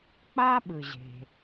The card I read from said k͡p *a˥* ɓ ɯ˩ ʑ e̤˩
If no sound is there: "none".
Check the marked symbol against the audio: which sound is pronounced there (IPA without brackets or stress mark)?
a˥